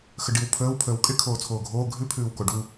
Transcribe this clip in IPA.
xəɖiw pʰəːw pʰəːwkʼɪ kʰoːt͡sʰoːɡʱoː ɡʱʉ pʰʉːwkoɖu

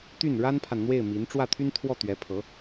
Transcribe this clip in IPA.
t̪y˥˩n ɻa˥npʰa˨nn̪we˥˩ɪ̯ mi˧˥n ʈ͡ʂwä˥˩t̪ʰy˥nt̪ʰwɔ˥˩ t̪ɥɛ˧˥pʰɤ˧˥

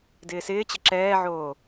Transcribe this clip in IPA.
dɪːsɪːt͡ɕɪ ǁɛːʕoː

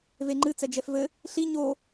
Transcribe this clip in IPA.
veŋ͡ǃɨ t͡sɛd͡ʒɛfvɘ | ɬi ɲo

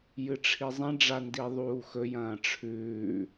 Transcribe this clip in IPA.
jɨʈ͡ʂʰizˤẽ ɖ͡ʐandiðˤuːxɵ jɐ̃ːʈ͡ʂʰʉː

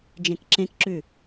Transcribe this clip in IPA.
d͡ʒẽkǁẽkǁʉ

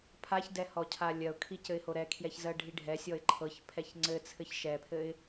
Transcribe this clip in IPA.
pʰaçdɛ hɔcʰalʲɜʊ̯kʰi cɘɪ̯hoɾɛkʰjɛç zɜɖʱiɖʱɛsʲɔɪ̯ ǃʰɤçpʰɛç ŋ͡ǀɘ t͡sʰɘçʃɛpʰɘɪ̯

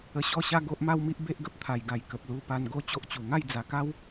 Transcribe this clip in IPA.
ə˧ɕɔ˥˧ɕa˦ ɡo˦ʔma˦wmi˦ʔ be˦ʔɡə˦p̚t̪ʰa˨˩jɡa˨˩j kə˨p̚lu˧pa˧n ɡo˦t͡ɕo˦ʔt͡ɕu˨˩ ŋa˥˧jd͡za˨˩ka˦w

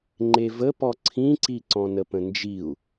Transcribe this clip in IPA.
ŋ͡ǃevə pɔǀʰĩǀi ǀɔ̃nəpə̃nd͡ʒiu̯

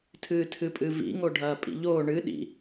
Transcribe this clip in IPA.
tʰɨːtʰɨpʼɨvḭ ŋoɖʱɐːpʼḭʎoː ɳɨ ɗḭ

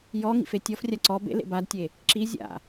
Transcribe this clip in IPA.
jɔ ŋḭfetʲɔfrʲa ǀɔ bḛlḛ badtʲe | ǁi zʲa̰

